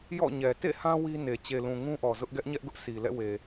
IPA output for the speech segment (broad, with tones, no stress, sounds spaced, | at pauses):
j ɔ̰˦˨ ɲ ɛ˨ t ḛ˦˨ h ã˦ w i˦ n e˨ t͡ɕ e˨ l ũ˨ ŋ ũ˦ ʔ ɔ˨ z ʊ˦ ʔ ɡ ɛ˦ ʔ ɲ ɛ˦ ʔ ɡ ʊ˦ ʔ sʰ i˨ l ɛ̰˦˨ w e˨